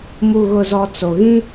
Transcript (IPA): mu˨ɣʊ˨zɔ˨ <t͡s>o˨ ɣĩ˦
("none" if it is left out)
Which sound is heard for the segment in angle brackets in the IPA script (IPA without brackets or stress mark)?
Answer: t͡s